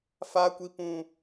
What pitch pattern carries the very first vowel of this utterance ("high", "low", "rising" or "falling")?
high